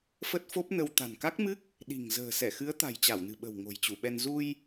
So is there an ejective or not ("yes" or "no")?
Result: no